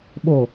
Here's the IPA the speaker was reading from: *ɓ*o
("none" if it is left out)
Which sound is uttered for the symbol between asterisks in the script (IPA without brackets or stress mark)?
ɓ